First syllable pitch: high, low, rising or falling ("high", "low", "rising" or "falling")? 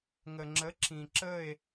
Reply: low